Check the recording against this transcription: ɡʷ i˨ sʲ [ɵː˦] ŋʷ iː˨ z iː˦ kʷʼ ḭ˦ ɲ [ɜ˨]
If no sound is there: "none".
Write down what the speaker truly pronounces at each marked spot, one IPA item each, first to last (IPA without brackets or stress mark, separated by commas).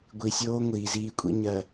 oː˦, ɜ˨